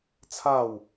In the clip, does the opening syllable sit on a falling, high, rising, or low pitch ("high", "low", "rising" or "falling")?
falling